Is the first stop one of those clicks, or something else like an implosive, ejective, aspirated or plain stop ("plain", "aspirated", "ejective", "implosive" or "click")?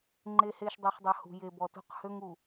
click